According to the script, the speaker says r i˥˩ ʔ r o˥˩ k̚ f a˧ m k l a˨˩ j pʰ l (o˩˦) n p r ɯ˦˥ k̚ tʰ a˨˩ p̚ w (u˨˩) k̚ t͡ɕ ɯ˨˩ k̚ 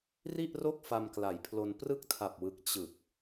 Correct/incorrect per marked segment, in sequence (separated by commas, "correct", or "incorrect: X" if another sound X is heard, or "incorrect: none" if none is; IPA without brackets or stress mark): incorrect: o˧, incorrect: ɯ˨˩